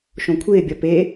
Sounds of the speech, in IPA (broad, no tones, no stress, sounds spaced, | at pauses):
ʃ õ kʷʰ ɪː bʲ ɒ p e